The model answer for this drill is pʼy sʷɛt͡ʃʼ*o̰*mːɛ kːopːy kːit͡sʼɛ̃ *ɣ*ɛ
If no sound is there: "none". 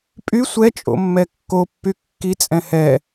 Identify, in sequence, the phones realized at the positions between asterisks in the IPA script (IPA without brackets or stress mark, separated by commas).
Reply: o̰, h